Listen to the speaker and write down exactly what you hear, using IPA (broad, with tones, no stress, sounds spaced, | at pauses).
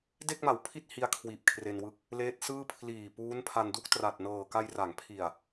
d e˥˩ k̚ m a˩˦ w pʰ i˥˩ t̚ h i˦˥ a̯ kʰ w iː˨˩ p̚ kʰ r e˧ n w ɯ˦˥ k̚ | l eː˦˥ t̚ s ɯː˥˩ pʰ l iː˨˩ p uː˦˥ n pʰ a˧ n d u˥˩ k̚ t r a˨˩ t̚ n ɤː˨˩ k a˧ j r a˩˦ ŋ pʰ i˨˩ a̯